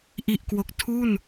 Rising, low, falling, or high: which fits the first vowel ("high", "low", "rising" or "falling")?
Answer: low